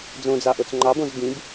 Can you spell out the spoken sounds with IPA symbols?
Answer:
d͡z õ d͡z ɑ ʔ o t͡s ŋ͡ǃ ɑ b õ z b ĩ b

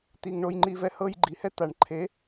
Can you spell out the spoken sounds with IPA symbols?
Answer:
t̪ i˧ ŋ ɳ o˦ j ŋ͡ǃ i˦ v ɛ˦ h ɤ˦ j ɡ͡ǃ i˨ h ɛ˦ t̪ a˨ ɳ ǃʰ e˨˦

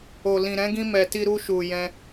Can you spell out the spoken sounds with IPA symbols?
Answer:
o˨ l ĩ˨ ɾ ɛ̃˨˦ ɡ ĩ˧ m ɛ˨ t i˧ ɾ u˧ ʃ u˨ j ɛ̃˧

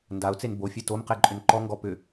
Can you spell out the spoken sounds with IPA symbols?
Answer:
n d a ʊ̯ t͡s e n b o fʲ e t o m q e ǃʼ ʏ n ǃ ɔ ŋ ɡ ɔ p ʏ

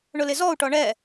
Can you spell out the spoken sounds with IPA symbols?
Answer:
ɳ ʊ l ɪ z ɔ u̯ ʈ ɔ ɳ ɛ

